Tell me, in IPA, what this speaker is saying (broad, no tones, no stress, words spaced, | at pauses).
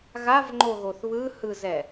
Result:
ɣavŋ͡ǃoɣoθ βɯhɯzɛ